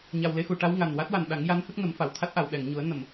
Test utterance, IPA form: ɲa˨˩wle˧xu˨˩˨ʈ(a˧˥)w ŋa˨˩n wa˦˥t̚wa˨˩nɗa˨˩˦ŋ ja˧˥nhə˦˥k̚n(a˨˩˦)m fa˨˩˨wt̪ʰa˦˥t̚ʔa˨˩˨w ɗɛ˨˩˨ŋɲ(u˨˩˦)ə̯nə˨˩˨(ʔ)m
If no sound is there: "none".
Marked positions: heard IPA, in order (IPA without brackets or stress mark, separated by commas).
a˧˥, ə˨˩˦, u˨˩˦, none